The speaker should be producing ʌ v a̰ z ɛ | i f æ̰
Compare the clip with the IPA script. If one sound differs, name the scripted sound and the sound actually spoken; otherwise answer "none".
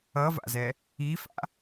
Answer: æ̰ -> a̰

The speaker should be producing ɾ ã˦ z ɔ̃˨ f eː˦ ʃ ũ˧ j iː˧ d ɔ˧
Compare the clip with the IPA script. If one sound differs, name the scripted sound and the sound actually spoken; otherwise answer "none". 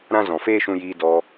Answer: none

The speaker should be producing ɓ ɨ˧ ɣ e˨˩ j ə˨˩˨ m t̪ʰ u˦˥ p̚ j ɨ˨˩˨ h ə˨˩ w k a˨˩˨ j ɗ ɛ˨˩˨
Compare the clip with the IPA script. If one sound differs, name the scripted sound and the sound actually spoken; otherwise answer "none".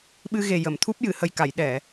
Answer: w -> j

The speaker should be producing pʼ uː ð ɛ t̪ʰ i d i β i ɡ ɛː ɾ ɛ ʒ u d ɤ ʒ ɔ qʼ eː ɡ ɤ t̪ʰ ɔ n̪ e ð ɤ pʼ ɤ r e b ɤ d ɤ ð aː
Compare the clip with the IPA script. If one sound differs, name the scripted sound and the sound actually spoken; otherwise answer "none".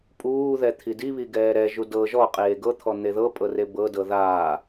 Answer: none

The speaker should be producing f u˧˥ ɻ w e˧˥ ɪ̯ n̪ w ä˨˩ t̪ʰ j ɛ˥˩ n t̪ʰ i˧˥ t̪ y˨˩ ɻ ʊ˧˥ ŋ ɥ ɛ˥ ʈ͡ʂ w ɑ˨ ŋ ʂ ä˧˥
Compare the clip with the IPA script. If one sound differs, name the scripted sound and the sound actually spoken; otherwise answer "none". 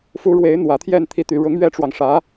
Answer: none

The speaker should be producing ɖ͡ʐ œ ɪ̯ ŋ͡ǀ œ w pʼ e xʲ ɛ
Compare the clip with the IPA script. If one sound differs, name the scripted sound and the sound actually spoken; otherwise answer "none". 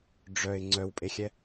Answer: none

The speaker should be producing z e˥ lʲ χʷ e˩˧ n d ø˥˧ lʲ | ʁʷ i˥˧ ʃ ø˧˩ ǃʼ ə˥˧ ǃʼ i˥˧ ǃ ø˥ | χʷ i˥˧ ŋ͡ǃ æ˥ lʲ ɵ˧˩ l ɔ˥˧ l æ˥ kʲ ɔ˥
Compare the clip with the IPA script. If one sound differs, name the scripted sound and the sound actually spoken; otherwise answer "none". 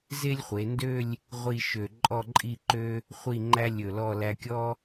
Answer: ə˥˧ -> ɔ˥˧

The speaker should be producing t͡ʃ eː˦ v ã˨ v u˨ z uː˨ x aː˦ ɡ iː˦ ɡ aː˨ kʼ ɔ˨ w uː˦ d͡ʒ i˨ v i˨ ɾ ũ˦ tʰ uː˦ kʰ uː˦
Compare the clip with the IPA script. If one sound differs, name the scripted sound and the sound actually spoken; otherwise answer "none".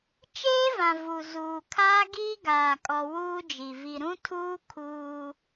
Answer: x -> kʰ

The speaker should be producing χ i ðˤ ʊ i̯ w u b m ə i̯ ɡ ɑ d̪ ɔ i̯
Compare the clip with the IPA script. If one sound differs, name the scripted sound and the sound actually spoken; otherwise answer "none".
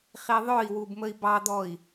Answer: ɡ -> b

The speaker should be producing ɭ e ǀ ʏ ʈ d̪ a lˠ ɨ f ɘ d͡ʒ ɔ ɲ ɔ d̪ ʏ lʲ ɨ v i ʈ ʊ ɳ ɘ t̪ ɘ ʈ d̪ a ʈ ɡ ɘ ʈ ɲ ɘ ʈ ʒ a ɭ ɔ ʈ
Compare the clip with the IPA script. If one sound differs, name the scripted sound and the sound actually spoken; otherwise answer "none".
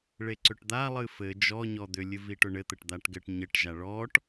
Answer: none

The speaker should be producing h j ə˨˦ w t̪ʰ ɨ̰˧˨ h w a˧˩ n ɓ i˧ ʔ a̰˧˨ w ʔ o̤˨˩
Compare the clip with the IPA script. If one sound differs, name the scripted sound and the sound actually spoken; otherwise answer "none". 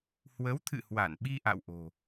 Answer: j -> w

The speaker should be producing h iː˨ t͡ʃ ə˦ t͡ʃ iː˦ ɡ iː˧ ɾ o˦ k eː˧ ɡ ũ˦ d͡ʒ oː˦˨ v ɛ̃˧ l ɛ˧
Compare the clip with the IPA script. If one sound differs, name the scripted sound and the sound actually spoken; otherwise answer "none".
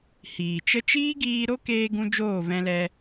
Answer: none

